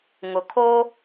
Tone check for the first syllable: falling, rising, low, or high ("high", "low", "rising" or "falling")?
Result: low